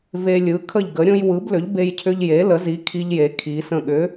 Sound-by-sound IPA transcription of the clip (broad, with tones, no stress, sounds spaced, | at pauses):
v e˧ lʲ ɯ˩˥ kʰ ə˧˩ ʎ ɡ ə˩˧ ɾʲ õ˧ j w ɯ˩˥ b l ʏ˩˥ ʎ b e˧ j cʰ ʏ˧ ʎ j e˩˥ l ə˩˥ z i˩˥ kʰ i˧ ʎ j e˩˧ kʰ i˩˧ s ə̃˧˩ ɠ ʏ˩˧